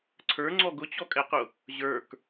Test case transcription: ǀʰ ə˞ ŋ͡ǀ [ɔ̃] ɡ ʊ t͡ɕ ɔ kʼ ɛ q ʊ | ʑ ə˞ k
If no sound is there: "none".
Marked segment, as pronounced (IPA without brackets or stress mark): ɔ